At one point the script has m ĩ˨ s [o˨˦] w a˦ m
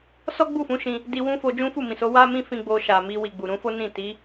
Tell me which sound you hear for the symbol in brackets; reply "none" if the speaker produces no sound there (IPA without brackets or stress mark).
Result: o˨˦